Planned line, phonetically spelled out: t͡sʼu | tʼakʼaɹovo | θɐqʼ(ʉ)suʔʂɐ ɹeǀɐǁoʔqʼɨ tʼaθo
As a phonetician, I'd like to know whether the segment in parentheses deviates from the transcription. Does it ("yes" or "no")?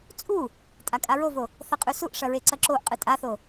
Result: no